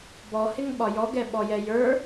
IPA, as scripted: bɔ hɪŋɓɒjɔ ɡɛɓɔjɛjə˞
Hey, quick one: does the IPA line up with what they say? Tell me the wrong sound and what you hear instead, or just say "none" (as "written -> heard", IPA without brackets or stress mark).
none